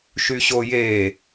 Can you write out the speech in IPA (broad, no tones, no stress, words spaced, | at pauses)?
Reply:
ʃyɕoje